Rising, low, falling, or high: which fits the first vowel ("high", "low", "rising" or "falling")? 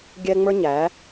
high